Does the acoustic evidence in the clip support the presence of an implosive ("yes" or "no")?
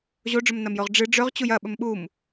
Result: yes